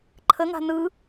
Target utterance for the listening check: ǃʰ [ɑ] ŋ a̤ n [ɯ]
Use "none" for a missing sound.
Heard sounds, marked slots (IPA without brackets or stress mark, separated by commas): ə, ɯ